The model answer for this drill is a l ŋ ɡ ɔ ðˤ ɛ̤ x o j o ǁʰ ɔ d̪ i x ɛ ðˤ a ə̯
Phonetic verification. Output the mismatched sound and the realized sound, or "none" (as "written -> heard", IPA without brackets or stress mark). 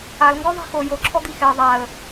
none